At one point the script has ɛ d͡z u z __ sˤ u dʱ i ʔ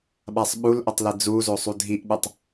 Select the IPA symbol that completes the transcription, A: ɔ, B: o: B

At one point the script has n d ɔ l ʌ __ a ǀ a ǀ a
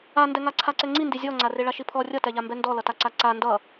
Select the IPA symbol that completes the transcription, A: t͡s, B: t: B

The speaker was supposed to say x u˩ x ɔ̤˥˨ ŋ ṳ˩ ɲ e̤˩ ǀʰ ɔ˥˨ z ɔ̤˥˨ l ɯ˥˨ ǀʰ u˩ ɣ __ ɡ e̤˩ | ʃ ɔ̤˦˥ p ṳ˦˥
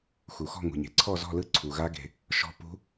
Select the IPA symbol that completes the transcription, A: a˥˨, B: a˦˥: B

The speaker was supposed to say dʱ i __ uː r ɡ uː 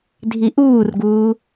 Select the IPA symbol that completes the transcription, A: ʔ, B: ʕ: A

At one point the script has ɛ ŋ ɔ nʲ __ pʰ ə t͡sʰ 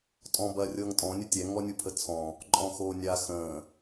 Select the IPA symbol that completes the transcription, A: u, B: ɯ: A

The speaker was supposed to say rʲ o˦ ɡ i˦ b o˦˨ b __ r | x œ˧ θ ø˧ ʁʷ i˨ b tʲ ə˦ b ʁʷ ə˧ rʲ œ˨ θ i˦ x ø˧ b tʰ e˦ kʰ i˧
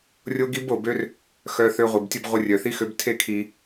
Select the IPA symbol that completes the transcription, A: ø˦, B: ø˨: A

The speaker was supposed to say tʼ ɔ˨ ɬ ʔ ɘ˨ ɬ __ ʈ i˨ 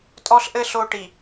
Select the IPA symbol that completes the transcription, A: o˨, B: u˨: A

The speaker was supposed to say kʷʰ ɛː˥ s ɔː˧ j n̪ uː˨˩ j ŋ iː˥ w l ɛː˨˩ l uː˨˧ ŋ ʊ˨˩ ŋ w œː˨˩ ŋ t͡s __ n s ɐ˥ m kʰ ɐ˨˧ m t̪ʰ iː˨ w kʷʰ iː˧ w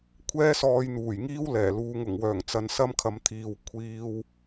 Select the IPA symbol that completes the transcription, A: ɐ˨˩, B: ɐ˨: B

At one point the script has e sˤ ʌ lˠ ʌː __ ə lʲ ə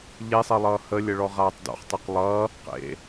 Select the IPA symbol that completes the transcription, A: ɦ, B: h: B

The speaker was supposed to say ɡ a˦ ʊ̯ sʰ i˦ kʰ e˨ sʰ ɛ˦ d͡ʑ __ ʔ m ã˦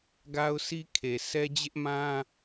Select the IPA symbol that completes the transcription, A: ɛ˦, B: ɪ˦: B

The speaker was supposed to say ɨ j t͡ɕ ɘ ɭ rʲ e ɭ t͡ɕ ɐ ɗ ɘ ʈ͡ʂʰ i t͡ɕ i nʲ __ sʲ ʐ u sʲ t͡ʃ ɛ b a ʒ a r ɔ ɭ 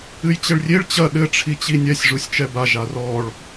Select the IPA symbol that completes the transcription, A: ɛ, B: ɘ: A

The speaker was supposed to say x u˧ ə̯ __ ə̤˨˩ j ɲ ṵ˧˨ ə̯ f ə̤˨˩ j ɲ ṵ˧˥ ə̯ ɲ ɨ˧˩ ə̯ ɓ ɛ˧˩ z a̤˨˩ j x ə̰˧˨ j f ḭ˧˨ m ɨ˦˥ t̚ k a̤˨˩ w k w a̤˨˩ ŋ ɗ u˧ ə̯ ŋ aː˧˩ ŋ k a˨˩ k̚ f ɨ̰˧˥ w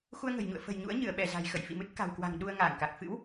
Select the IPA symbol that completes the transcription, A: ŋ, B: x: A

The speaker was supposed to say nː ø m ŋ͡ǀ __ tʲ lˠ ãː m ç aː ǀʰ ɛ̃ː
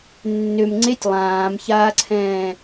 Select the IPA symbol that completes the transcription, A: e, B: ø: A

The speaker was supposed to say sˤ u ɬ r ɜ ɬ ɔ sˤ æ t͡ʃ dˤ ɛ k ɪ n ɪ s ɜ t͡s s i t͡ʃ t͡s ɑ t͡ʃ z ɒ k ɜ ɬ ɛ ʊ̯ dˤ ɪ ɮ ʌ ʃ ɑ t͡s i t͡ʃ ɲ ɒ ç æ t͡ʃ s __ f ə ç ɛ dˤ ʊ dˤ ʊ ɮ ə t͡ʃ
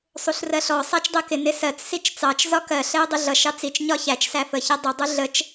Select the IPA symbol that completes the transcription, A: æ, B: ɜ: A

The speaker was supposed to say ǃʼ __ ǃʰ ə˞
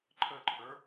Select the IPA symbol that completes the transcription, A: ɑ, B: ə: B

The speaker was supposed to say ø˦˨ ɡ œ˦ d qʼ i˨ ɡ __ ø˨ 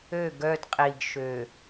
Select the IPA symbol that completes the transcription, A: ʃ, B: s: A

